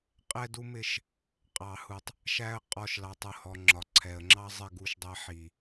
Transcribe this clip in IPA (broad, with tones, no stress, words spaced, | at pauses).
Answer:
qʼɛ˦du˦mɪ˦˨ʃ | qʼɑ˨hu˨tˤ | ʃæ˦ə̯ qʼɔ˦ʃlɑ˧tˤʊ˦hɔ˧ ŋ͡ǁɒ˨ ǀʰɛ˨ə̯ŋ͡ǁɑ˦ zˤɪ˦˨ɡu˧ʃdˤɛ˧ ħi˨